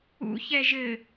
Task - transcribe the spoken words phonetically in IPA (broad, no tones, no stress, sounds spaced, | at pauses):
ṵ ç ɛ ʒ ɘ